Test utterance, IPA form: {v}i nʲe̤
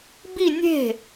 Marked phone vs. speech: incorrect: b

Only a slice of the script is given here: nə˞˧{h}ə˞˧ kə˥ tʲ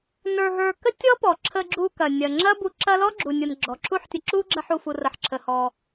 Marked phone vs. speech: incorrect: ɦ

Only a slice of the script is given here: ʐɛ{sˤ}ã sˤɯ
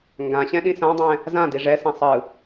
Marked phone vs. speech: incorrect: s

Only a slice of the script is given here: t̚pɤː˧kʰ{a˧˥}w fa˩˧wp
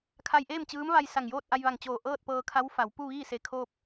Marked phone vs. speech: correct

